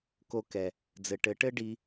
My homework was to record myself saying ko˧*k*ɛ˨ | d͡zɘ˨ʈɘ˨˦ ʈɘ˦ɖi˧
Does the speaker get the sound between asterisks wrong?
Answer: no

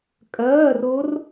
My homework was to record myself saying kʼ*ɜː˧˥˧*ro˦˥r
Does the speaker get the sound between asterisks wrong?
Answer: no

